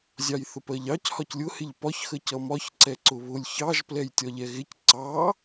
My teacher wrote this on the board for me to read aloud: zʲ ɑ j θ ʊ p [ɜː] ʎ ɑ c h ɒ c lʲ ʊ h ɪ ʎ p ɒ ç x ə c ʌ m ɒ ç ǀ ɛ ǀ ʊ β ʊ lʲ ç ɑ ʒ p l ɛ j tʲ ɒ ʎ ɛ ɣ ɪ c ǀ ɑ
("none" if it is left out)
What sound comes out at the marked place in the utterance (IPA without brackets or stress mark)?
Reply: ɜ